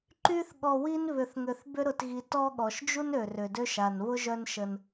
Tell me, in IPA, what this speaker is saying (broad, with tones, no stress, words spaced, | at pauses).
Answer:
ǃy˦θɠɔ˨wi˦n βʏ˨θŋø˨θ bʏ˦ɾʊ˨tɣi˨ tɔ˦ɠɔ˩ʃd͡ʒu˥nø˩ rʏ˩dø˦ʃ a˩nβʊ˥ʒœ˦n ʃə˨n